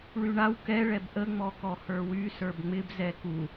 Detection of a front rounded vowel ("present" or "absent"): present